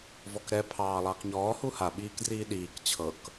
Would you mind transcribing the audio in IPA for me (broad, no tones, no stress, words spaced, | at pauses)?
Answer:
vɔkɾɛ pʰɑːlˠɑːkɲɔː huha ɓiːkdriːɗiːk t͡ɕʰɤk